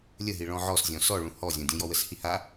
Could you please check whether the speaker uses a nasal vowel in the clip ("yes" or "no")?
yes